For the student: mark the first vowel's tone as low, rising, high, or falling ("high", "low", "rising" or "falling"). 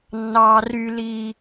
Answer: high